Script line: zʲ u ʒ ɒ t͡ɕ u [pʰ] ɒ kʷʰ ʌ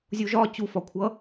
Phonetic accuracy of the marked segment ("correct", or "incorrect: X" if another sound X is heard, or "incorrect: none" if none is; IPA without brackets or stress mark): incorrect: f